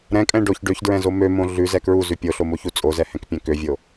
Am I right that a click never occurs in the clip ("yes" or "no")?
yes